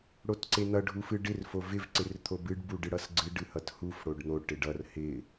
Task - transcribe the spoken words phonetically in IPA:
ɽ o t ǀ e n̪ ʌ ɖʱ u f ɨ ɖ ɪ r f o v ɪ v ǀ ɪ r t̪ʰ o b ɨ ɖ b u ɖ ɨ ɽ ʌ s ɡ͡ǀ ɨ ɖ ɨ h ʌ t h u f ɽ o ɖ n̪ o ʈ ɪ ɖ ʌ r h ɪ

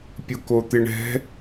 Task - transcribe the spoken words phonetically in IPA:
pʲ ʊ k o t̪ ɪ ɳ ɛ̤

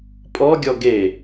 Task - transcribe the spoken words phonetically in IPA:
pʼ ɔ ɡʲ ɔ ɡ e

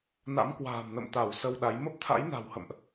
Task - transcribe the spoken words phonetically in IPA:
n a̰˧˥ m k w a̤ː˨˩ m n ə̰˧˨ m t̪ a˧˩ w s ə˧ w ɗ a˨˦ j m ə˦˥ p̚ t̪ʰ a̰˧˥ j n a̤˨˩ w h ə̰˧˨ m ʔ

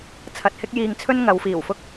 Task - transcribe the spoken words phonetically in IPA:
t͡sʰ ɐ˨ t̚ h ɪ˧ k̚ j iː˨ ŋ t͡sʰ ɵ˥ n ŋ ɐ˨˧ w f iː˨˩ w f ʊ˥ k̚

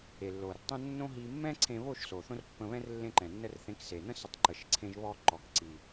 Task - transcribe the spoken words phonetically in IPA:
e˩ lː o˩ r tˤ ə̃˧ nː õ˥ ɦ i˧ mː ɛ̃˥ ǀʰ ẽ˧ β o˥˩ ʃ s o˩ θ õ˥ r pː ə̃˧ β ɛ̃˥ r lː ẽ˧ ǃ ɛ̃˩ nː ə˧ r θ ẽ˩˥ k s e˩ n̪ ə̃˥ s ə˩˥ tˤ ǃ ə˩ ʃ ǀʰ ẽ˧ ʒ β ɔ˧ ǃ ɔ˩ k ǀ i˩

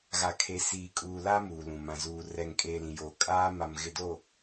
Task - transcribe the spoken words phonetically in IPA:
ɣ a˨ kʰ e˨ s iː˨ kʼ uː˨ l a˦ m uː˨ l ũ˨ m ã˨ z uː˨ r ɛ˨ ŋ kʼ eː˨ l ĩ˨ j oː˨ kʼ aː˦ m a˨ m ɣ ɪ˨ d oː˨

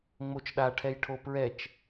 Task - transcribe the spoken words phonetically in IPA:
ŋ͡m o t͡ʃ ɗ a ʈʰ ɛ j ʈʰ o p ɹ ɛ t͡ʃ

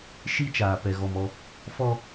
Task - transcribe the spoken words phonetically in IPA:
ʃ i˦ t͡ʃ aː˨ p ɛ˨ ɣ ɔ˨ m ɔ˦ | f ɔ˦

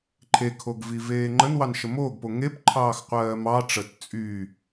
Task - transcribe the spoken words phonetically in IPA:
ǃʰ e kʰ o ɡ v i v eː ŋ͡ǃ ə n w ɑ n ʃ ə m oː ɡ p o ŋ e p ǃʰ ɑː x qʷ ɜː m ɑ ʈ͡ʂ ə t t͡sʼ y

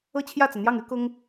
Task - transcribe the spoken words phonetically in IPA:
ɤ˥˧ t͡ɕʰ j ä˥˩ t͡s ä˩ n̪ j ɑ˥˩ ŋ y˥ k ʊ˥ ŋ

